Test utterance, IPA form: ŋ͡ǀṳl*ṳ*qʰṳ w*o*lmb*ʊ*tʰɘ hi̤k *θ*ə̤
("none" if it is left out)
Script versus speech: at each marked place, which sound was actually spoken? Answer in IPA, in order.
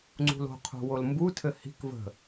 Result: o̤, o, u, v

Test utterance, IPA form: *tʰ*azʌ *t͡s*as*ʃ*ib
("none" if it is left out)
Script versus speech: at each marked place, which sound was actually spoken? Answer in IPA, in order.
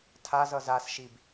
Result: tʰ, z, ʃ

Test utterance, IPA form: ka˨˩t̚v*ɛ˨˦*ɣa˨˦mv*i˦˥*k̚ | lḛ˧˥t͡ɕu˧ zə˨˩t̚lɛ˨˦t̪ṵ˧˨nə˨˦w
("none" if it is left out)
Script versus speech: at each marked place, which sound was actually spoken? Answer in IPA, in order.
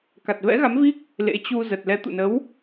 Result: ɛ̰˧˥, i˦˥

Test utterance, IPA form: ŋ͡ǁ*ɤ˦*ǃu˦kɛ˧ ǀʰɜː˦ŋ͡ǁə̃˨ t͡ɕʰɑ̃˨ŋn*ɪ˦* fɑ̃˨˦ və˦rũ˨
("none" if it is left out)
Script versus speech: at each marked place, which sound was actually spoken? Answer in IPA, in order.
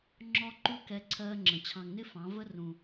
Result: ɔ˦, ɪ˦

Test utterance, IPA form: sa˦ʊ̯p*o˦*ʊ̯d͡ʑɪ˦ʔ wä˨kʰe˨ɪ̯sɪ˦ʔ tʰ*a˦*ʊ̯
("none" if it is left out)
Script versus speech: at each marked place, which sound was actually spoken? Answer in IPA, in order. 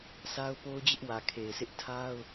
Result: o˦, a˦

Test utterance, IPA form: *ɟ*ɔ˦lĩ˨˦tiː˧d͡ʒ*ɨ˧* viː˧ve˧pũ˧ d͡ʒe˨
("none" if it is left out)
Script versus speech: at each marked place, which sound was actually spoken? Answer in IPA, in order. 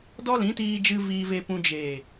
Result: d, ɨ˧

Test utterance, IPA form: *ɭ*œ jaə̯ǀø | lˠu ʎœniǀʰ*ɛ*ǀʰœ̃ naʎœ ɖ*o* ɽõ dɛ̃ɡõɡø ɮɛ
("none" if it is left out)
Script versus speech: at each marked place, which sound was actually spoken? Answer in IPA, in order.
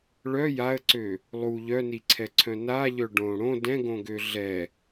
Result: ɭ, ɛ, õ

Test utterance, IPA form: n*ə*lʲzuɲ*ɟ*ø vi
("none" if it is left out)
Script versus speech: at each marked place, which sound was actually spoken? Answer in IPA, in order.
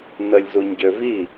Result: ə, ɟ

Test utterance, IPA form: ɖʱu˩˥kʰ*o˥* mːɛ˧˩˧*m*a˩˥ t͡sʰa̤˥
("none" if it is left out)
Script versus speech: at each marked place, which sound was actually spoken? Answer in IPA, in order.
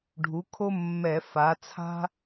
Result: o˥, f

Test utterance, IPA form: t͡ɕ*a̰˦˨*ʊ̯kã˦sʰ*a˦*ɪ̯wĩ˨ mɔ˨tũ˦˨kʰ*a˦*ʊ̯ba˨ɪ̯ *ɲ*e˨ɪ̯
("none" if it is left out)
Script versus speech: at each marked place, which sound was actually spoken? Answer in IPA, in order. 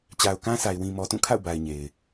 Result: a˨, a˨, a̰˦˨, ɲ

